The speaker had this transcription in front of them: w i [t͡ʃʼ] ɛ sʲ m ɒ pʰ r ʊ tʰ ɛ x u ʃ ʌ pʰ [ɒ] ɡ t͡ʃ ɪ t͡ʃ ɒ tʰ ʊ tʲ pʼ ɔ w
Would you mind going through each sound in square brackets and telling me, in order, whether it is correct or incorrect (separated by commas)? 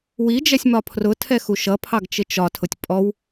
incorrect, incorrect